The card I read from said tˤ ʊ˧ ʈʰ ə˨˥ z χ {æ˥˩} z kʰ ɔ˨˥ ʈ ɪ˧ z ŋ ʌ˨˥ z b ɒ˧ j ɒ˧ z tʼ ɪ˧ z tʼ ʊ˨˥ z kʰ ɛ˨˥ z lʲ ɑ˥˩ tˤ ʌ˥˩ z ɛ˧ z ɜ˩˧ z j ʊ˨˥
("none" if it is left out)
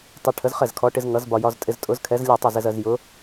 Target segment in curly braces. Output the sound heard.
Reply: ɛ˥˩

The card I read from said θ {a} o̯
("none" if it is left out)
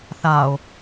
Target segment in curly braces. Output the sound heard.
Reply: a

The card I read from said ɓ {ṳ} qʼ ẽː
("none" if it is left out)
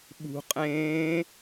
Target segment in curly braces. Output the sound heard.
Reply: ṳ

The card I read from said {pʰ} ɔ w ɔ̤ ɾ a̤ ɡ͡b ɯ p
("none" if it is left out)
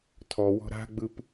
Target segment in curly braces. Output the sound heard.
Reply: tʰ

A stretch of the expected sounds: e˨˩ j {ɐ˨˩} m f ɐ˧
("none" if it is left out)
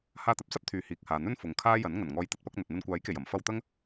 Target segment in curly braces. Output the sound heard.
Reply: ɐ˨˩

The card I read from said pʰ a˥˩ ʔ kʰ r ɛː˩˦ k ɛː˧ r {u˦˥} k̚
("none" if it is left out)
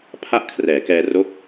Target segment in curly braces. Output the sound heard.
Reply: o˦˥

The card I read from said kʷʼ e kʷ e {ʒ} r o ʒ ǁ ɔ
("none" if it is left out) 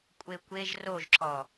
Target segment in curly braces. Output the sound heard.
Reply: ʒ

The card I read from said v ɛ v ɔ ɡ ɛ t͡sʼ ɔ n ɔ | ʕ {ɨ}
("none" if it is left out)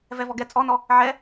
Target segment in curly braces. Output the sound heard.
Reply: ɛ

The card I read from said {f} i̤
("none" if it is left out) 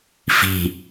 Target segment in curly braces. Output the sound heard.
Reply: f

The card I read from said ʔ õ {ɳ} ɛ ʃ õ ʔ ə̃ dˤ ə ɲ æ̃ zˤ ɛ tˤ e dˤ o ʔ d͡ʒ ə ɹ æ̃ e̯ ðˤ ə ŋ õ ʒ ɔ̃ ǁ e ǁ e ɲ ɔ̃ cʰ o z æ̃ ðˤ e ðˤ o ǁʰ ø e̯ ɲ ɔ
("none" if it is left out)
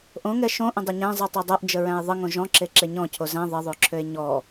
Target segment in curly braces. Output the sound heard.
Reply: ŋ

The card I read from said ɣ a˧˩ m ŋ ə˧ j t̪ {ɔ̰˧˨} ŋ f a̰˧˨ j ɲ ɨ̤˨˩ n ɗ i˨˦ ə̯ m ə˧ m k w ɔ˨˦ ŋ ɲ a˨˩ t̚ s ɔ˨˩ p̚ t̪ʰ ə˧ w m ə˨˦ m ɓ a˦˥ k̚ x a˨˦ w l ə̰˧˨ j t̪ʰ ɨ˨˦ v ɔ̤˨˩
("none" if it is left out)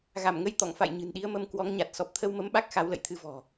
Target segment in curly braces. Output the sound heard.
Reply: ɔ̰˧˨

